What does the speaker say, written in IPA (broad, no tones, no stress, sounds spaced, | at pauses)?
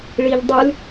ɭ i ʎ dˤ ʉ l